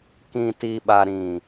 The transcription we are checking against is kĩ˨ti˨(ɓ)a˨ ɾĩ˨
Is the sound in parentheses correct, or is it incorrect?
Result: correct